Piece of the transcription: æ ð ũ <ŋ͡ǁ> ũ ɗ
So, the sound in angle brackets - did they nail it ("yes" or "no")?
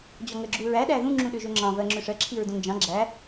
yes